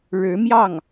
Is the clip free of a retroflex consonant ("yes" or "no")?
no